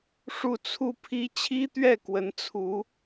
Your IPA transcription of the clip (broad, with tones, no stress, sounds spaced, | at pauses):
ʂ u˥˧ t͡sʰ u˥˩ pʰ i˥ t͡ɕʰ i˥ t̪ ɥ ɛ˥˩ k w ə˧˥ n t͡sʰ u˧˥